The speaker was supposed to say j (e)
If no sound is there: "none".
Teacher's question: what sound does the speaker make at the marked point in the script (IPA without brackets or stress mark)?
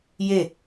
e